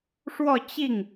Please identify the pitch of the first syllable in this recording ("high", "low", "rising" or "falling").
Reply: falling